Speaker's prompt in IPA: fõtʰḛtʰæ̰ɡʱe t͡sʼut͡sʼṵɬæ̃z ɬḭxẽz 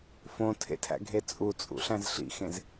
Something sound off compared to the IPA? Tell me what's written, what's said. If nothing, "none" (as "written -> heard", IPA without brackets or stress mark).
none